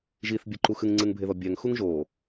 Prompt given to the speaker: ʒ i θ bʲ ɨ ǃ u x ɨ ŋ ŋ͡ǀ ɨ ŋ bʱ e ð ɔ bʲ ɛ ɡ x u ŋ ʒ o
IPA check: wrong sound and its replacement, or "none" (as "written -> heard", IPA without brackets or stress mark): ɡ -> ŋ